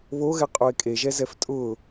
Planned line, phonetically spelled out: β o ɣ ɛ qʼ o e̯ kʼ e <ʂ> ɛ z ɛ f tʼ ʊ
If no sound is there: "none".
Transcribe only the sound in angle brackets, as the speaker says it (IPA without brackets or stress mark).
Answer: ʒ